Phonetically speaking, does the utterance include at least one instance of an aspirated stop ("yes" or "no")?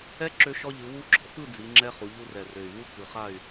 no